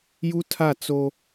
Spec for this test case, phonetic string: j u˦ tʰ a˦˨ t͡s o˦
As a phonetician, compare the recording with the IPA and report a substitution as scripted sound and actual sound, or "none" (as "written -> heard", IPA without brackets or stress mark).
none